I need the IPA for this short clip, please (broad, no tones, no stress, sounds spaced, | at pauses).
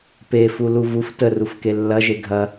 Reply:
p e f u l u v u f t ə r u f k e lː ɐ ʒ e ɡʱ ɐ